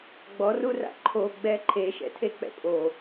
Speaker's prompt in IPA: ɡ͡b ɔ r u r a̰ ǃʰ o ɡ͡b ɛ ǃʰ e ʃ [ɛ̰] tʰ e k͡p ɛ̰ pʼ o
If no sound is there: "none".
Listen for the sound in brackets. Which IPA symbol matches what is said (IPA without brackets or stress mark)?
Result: ɛ̰